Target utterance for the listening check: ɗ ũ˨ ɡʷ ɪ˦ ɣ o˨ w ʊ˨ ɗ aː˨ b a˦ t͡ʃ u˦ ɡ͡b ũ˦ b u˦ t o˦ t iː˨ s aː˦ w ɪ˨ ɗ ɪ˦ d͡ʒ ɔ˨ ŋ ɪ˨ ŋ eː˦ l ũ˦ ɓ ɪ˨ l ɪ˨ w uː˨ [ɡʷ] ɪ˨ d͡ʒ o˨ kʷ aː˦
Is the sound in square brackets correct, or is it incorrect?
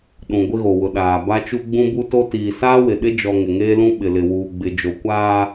incorrect